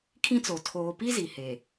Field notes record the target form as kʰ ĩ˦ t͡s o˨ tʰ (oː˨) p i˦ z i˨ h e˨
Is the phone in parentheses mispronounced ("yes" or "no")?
no